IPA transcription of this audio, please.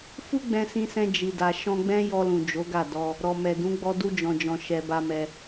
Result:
f u˦ ɡ͡b ɛ̃˧ s ĩ˧ s ɛ̃˧ d͡ʒ i˨ d a˨ ʃ ɔ̃˧ ɡ͡b ɛ̃˦ j ɔ˧ l ũ˨ d͡ʒ o˨˦ ɡ a˦˨ d ɔ˧ | ɾ ɔ˨ m ɛ˨ d ũ˨˦ ɡ͡b ɔ˧ d u˧ d͡ʒ ɔ̃˨ d͡ʒ ɔ̃˨ ʃ ɛ˨ b a˧ m ɛ˧

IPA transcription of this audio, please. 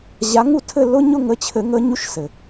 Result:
ʑ a˨˦ ŋ u˦˨ tʰ ɘ˦˨ lː ʊ˦ ɲ ʊ˦˨ ŋ ə˨˦ t͡ɕʰ ɘ˨˩˦ ŋ ə˨˦ ɲ u˦ ʃ s ɘ˩

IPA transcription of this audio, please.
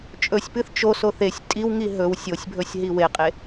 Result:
t͡ʃʼ ɵ sʲ p ɨ θ t͡ʃ o s o θ e sʲ tʼ i w ŋ i ɦ ɵ w sʲ o sʲ bʱ ɵ sʲ ɦ i w e qʼ e

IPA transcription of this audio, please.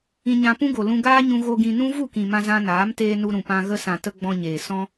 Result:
ĩ˦ ɲ ã˦ p ũ˦ ɡ o˨ l ũ˧ ɡ aː˦ ɲ ũ˧ ɣ o˧ ɡ ĩ˧ n ũ˦ v u˦˨ k ĩ˨ m ã˧ z ã˧ n aː˨˦ m t eː˧ n u˧ ɾ ũ˨ p ã˧ ɣ ə˧ s ã˨ t ə˧ ɡ͡b ɔ̃˧ ɲ eː˨ s ɔ̃˧

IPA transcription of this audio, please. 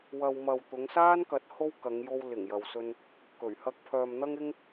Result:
w ɐ˧ w m ɐ˨ w t̪ ʊ˨˧ ŋ s aː˥ n k ɐ˨˥ t̚ h o˥ w k ɐ˨˧ ŋ j o˧ w l ɪ˨˩ ŋ j ɐ˨ w s ɵ˧ n | k ɵ˨˩ ɥ h ɐ˧ k̚ pʰ œː˨ m n̪ ɐ˥ ŋ ɪ˥ ŋ

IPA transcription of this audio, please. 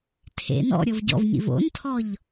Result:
tʰ ḛ n ɔ̰ ɾʲ ɤ v ɟ ɔ̰ v ɲ ḭ v o̰ n tʰ ɔ ʎ

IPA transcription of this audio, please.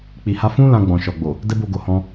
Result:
k͡p i˨ h a˧ f ũ˦ l ã˧ ɡ͡b ɔ̃˨ ʃ ɔ˨ ɡ͡b o˨ | d ɛ˦ b o˧ ɡ o˨ h ɔ̃˧

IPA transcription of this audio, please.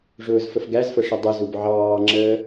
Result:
ʐ ʊː z f ə f ɡ æ z f ə ʂ ə dˤ ə z u b ʕ ɑː ŋ͡ǁ əː

